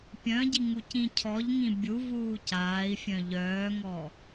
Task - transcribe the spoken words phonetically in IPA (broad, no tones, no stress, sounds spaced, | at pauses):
pʲ œ̃ ɟ i ŋ u c ĩ cʰ ɔ ʎ ŋ ĩ bʲ u v uː c aː i̯ fʲ œ̃ ʎ œː ŋ ɔ